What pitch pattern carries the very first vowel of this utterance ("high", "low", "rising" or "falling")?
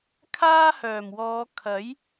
high